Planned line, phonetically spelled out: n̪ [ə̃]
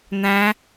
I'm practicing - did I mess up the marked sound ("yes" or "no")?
yes